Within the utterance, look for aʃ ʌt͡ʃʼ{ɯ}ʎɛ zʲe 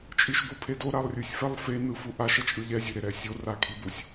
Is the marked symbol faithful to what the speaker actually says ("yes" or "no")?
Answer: yes